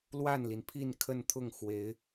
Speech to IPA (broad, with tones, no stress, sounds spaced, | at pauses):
l w a˥˩ n l i˩ n pʰ i˥˧ n kʰ ə˥˧ n t̪ʰ ʊ˥˩ ŋ x w e˧˥ ɪ̯